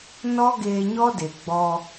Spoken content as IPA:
n ɔ˦ ɡ eː˧ ɲ ɔ˦ d e˨ ɡ͡b ɔ˧

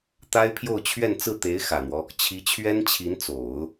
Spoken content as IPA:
t̪ a˥ ɪ̯ pʰ j o˥˧ ʊ̯ t͡ɕʰ ɥ ɛ˥˧ n t͡s ɹ̩˥˩ t̪ e˧˥ ɪ̯ x ä˨˩ n̪ w ɔ˦ | t͡ɕʰ i˧˥ t͡ɕʰ ɥ ɛ˥ n t͡ɕʰ i˧˥ n t͡s o˨˩˦ ʊ̯

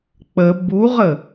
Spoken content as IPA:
k͡p ə b u ʁ ə

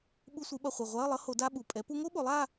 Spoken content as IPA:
ɓ u˧˥˧ sʷ i˩˥ ɓ ʌ˨˩ χʷ i˨˩ ʁʷ a˧˥˧ ə̯ lˠ ʌ˧˥ h o˩˥ d a˧˥˧ ɓ u˨˩ pʼ ɛ˩˥ p u˧˥ ŋ o˧˥ ɓ o˩˥ lˠ a˧˥˧

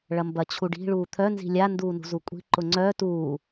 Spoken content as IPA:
ɭ ɐ m b ɐ t͡ɕʰ u ɖ i̤ ɭ uː t̪ʰ œ n z i̤ lʲ a n d uː n ṳ z u kʷʼ i̤ ǃ ʊ ŋ͡ǀ œ t uː

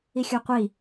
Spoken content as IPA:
i xʲ ɵ qʷ i

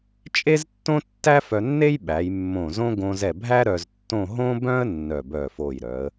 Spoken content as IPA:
t͡ʃʼ e˥ z tː õ˥ tː æ˥ f œ˧ nː e˥ j ɓ æ˩˧ j mː õ˧˩ z õ˥ ɡ õ˧ z ɛ˧˩ bʱ æ˥ ɾ œ˧ z tː õ˥˧ ɦ õ˥ b œ̃˥ ə̯ nː œ˧˩ b œ˧˩ f o˧˩ j ɾ œ˩˧ ə̯

